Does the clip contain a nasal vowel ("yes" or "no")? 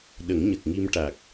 no